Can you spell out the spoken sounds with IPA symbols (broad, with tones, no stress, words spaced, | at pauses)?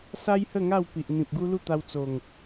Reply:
sa˦jhə˥˧ŋa˥˧w pi˨ʔ n̪ĩ˨p̚ɡu˦lu˥˧t̪a˧w t͡so˨˩ŋ